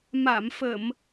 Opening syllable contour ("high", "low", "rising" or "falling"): low